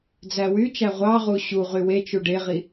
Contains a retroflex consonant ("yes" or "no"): yes